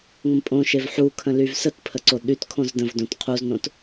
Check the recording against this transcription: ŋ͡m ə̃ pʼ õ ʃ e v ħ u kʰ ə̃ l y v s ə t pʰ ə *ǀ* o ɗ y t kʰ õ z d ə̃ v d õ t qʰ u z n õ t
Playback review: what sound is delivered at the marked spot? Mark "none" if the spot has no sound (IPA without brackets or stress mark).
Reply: ǀ